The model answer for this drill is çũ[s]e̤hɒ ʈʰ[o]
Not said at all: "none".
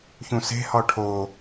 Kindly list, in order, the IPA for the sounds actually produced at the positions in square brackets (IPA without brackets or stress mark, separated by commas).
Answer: s, o